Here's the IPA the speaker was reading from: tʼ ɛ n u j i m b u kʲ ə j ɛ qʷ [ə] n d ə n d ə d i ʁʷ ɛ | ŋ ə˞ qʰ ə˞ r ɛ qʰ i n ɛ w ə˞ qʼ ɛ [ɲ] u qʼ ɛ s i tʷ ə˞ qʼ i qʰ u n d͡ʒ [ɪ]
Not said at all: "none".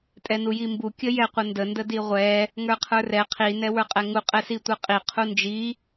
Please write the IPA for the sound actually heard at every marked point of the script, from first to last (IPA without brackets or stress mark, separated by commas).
ə, ŋ, i